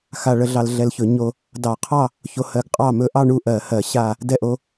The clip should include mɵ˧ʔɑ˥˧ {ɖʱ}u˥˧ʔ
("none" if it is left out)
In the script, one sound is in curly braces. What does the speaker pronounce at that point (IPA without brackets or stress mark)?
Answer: ɳ